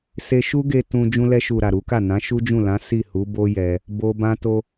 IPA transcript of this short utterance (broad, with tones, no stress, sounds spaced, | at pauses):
s e˧ ʃ u˦ ɡ e˧ t ũ˧ d͡ʒ ũ˧ l ɛ˧ ʃ u˨ ɾ a˨ ɾ u˨˦ k a˦˨ n ã˨˦ ʃ u˦ d͡ʒ ũ˦˨ l ã˨˦ s i˦˨ h u˨˦ b o˦ j ɛ˧ | b o˧ b ã˦ t o˦